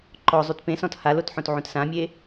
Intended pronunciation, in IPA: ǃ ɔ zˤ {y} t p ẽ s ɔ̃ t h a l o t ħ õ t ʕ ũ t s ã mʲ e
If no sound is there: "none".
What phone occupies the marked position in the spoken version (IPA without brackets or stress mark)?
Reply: y